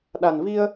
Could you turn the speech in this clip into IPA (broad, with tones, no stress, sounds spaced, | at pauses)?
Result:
ɗ a˨˩ n v i˧ ə̯